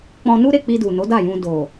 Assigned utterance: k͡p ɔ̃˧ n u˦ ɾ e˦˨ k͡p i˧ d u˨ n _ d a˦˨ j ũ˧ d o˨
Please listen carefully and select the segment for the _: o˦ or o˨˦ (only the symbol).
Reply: o˨˦